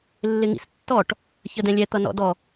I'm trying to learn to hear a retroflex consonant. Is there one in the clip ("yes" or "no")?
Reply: yes